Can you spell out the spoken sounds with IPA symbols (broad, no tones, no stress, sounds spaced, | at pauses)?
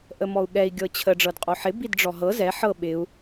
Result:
ʔ ə m ɔ u̯ ɠ ɛ i̯ ɡʲ ɤ t͡ɕʰ ə ɖ͡ʐ ɤ d qʼ o ħ ɪ b i d ɖ͡ʐ ɔ ɦ ɤ z ɛ ħ ɤ ɓ ɪ u̯